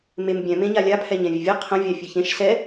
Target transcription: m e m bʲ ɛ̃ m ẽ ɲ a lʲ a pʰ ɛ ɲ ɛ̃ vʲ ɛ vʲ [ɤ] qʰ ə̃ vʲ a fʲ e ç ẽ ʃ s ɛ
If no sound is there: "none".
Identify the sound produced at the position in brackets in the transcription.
ɤ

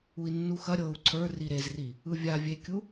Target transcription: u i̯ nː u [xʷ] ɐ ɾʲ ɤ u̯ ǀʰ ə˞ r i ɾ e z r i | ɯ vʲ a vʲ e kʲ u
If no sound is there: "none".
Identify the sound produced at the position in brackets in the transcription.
x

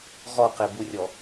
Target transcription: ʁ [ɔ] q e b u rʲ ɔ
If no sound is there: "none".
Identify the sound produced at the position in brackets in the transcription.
ɔ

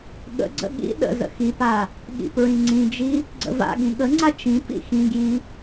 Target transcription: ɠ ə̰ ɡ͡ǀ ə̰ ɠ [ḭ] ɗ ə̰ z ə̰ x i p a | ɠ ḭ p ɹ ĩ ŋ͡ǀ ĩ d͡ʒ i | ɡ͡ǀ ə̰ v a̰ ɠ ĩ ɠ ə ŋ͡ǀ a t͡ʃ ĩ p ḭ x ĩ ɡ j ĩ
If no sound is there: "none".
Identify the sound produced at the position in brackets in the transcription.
ḭ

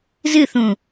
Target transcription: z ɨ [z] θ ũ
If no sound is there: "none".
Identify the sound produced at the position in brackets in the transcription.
none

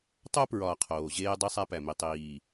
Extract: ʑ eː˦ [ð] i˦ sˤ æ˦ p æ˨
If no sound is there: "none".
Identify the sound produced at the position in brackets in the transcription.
dˤ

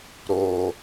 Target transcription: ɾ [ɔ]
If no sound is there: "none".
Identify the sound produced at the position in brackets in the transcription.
o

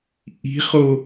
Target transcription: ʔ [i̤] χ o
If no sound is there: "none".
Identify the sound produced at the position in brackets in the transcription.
i̤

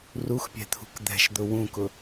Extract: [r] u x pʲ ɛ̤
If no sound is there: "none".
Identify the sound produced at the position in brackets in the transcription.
r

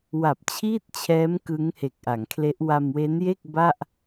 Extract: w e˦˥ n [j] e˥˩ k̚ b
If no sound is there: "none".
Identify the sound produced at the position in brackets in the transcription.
j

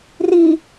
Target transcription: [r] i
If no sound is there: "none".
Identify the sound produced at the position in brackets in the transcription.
r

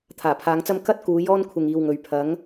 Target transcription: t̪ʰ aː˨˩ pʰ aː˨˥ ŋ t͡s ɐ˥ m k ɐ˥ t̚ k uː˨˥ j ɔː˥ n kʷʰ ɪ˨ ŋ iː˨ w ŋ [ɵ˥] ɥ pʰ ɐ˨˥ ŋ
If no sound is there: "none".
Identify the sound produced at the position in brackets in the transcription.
ɵ˨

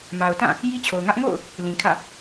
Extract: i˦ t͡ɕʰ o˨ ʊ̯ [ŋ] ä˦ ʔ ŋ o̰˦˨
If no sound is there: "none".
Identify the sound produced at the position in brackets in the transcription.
ŋ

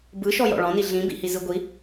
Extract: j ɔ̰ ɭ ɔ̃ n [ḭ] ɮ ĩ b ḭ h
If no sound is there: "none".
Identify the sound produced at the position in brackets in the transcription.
i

